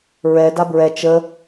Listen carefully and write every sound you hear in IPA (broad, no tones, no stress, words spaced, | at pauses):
ɹɛ dabɹɛ t͡ʃə